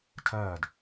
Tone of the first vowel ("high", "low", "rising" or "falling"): falling